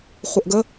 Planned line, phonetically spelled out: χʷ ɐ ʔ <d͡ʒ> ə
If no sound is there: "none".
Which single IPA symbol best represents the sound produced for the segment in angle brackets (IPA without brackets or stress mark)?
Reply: ɡ